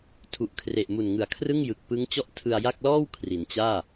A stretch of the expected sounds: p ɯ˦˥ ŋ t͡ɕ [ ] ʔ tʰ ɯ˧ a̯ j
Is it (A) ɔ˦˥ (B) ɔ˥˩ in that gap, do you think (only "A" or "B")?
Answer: B